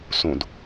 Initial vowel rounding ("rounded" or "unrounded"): rounded